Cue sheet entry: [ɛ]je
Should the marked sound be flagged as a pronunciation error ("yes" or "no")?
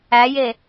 yes